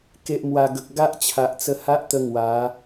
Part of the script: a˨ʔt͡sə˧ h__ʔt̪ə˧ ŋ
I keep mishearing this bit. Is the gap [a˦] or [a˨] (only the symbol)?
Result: a˦